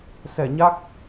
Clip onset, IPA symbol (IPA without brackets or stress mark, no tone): s